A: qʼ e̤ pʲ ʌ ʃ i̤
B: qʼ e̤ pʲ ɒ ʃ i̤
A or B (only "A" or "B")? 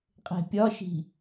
B